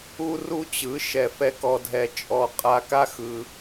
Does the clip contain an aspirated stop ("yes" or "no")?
no